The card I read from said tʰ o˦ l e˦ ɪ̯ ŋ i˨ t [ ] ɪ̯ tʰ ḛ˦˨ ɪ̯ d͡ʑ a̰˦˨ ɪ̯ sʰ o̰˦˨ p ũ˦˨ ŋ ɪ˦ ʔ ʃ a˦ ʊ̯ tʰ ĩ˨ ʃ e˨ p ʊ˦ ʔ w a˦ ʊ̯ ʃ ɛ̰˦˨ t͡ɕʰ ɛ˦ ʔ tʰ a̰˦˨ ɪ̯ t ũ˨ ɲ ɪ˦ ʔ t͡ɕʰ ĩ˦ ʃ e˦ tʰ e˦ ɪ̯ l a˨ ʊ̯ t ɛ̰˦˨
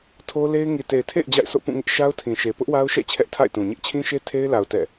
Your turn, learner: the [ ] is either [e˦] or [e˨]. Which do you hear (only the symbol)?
e˨